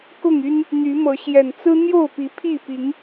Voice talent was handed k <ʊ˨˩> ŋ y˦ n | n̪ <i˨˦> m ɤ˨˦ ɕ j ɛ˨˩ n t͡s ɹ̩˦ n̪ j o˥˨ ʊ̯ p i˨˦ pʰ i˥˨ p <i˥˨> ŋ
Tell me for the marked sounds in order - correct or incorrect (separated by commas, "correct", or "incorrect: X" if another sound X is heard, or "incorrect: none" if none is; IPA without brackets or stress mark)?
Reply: incorrect: ʊ˥˨, incorrect: y˨˦, incorrect: i˨˦